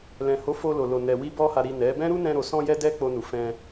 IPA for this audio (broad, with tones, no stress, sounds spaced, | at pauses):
l ɛ̃˨ h o˨˦ f o˧ l o˨ l o˨ n ɛ˨ w i˧ b ɔ˧ h a˨ ɾ i˨ n ɛ˨˦ b ɛ̃˦ ɾ u˦ n ɛ̃˧ ɾ o˨ s ɔ̃˧ j ɛ˧ d ɛ˧ k͡p o˧ n u˨ f ɛ̃˧